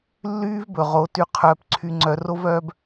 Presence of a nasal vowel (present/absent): absent